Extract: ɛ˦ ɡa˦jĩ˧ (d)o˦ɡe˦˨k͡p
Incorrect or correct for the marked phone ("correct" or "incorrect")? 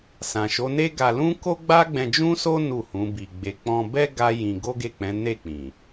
incorrect